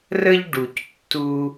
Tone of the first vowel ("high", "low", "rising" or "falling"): high